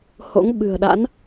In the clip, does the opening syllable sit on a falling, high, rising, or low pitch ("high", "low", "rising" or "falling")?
rising